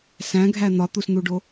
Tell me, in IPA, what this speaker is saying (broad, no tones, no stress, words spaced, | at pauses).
sæ̃ɡʱæ n̪ɒt̪usn̪uɖo